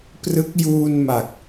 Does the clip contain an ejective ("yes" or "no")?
no